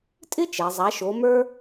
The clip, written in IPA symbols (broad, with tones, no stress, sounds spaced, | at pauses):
tʼ ɪ˥ t͡ʃ ɛ˩˧ zˤ a˨˥ ʃ o˨˥ m ə˞˥